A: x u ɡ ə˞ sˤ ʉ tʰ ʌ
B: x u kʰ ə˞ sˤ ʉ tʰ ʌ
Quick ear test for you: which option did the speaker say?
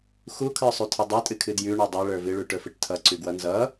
B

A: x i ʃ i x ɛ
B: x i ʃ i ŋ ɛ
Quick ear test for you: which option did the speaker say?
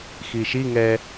B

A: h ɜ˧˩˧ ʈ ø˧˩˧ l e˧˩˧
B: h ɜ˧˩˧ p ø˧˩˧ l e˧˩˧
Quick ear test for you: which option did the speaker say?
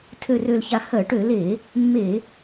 A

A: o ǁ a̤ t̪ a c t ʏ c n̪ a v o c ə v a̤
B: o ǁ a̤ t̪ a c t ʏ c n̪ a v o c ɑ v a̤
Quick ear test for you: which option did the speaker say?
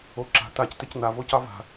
B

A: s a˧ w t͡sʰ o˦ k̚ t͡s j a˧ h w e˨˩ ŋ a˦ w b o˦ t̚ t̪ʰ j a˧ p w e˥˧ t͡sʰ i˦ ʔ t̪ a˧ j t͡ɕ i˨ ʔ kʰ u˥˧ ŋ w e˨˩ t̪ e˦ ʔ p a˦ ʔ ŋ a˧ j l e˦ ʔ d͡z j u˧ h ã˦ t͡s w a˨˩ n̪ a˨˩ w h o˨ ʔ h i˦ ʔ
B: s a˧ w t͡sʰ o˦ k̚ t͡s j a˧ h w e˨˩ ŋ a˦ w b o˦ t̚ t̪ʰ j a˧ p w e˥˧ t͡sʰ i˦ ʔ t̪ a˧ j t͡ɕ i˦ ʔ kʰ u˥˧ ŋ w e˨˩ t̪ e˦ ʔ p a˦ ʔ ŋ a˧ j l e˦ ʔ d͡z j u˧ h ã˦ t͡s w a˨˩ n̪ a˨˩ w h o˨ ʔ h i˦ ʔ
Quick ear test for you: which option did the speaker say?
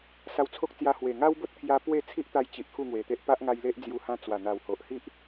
A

